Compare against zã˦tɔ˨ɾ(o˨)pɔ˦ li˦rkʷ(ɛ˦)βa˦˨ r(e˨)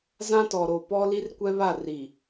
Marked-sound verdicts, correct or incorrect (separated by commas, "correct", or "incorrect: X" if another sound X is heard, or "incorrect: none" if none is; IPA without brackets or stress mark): correct, correct, incorrect: i˨